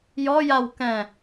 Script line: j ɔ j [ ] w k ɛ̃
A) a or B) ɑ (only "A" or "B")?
A